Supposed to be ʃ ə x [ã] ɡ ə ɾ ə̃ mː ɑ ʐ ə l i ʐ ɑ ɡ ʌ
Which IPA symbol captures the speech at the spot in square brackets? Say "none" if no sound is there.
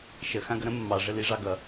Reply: ã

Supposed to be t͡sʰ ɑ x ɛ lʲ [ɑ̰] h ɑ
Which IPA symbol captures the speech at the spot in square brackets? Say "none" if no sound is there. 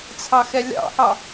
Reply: ɑ̰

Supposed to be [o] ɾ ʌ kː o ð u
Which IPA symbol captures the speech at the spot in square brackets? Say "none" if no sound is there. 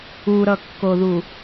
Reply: u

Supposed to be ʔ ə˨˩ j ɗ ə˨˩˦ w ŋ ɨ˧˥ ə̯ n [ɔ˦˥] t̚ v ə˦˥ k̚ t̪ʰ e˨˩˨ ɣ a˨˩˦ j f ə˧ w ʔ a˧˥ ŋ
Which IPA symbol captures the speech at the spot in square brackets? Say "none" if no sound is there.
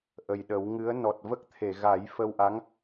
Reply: ɔ˨˩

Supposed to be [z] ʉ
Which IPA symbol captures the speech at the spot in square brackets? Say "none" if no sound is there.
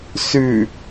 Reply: s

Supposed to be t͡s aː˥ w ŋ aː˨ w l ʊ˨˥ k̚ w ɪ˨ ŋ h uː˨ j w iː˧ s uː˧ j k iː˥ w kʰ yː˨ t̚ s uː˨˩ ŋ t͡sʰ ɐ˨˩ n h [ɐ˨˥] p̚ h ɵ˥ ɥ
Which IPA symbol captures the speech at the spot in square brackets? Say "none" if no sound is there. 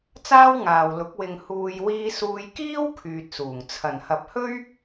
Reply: ɐ˨˥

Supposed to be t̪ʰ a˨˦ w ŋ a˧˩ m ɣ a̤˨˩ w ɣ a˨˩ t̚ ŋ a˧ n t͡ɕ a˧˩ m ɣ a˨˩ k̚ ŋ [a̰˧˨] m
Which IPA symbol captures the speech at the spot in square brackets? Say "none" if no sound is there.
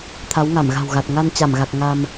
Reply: a˧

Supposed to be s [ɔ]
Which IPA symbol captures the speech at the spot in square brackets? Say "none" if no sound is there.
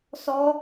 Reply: ɔ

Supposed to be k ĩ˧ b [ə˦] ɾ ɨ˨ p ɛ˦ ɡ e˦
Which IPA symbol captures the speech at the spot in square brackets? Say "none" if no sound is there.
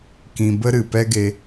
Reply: ə˦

